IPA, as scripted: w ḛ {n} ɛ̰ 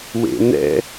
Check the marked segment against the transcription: correct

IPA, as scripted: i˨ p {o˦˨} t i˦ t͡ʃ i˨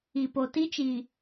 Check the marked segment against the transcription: incorrect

